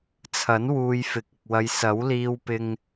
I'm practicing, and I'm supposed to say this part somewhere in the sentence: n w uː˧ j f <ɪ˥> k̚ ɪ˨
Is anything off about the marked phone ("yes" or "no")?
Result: yes